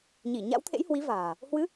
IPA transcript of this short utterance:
ɲ i˧˩ ɲ a̰˧˥ w t̪ʰ ḛ˧˥ j h w i˨˦ v a̤ː˨˩ | h w ɨ˨˦

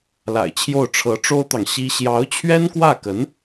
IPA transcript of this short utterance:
l a̰˨˩ ɪ̯ t͡ɕʰ j o˥˩ ʊ̯ ʈ͡ʂʰ ɤ˧˥ ʈ͡ʂ o˥ ʊ̯ t̪ ɑ˨ ŋ ɕ i˥ ɕ j ɑ˧˥ ʊ̯ t͡ɕʰ ɥ ɛ˥ n k w ä˥˩ k ə˧˥ n

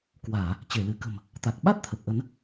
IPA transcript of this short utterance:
k w aː˧˩˨ | t͡ɕ e˧˩ l ɨ˧˩ k ə̤˨˩ m | t̪ a˨˩ k̚ ɓ a˦˥ t̚ t̪ʰ ə˨˩ p̚ ʔ ə˨˦ n

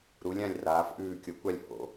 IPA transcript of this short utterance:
ɾ u˨˦ lʲ ã˦˨ lʲ r aː˨˦ f ʔ ʉː˦˨ kʲ o˨˦ kʷ a˦˨ lʲ h o̰˨˦

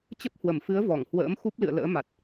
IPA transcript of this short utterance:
t͡ɕ ə˦˥ p̚ h w ə˧˩ m f ɨ˨˦ ə̯ v ɔ˧˩ ŋ h w ə̰ː˧˥ m x u˦˥ p̚ l ɨ̰˧˨ ə̯ l ə̰ː˧˥ m a˨˩ t̚

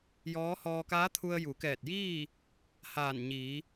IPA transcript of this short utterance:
j ɔː˧˥ h ɔː˧ k aː˧˥ t̪ʰ u˧ ə̯ j u˩˧ k ɛː˧˩ t̚ j iː˥˨ | h aː˧˩ n ɲ iː˩˧

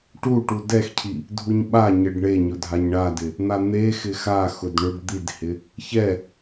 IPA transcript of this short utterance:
ʈ u ʈ u d ɛ x cʰ i | dʱ u ɲ ɓ a ɲ e ɖ ɳ e ɲ ʊ dʱ a ɲ ɳ a d ɪ | n̪ a n̪ e x ɪ x a x ʊ d ɳ ʊ ɖ d̪ i d h ɪ | ç ɛ

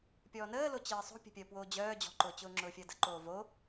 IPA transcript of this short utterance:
pʲ ɔː n əː l o t͡ɕ əː sˤ o̤ pʲ ə̤ pʲ əː p w oː d͡ʑ œː d͡ʑ ɔ̤ ǃ ʊː t͡ɕ ʊː ŋ͡ǁ ʊː fʲ əː d ə̤ ǃ oː v o

